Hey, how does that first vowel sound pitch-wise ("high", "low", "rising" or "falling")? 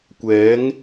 rising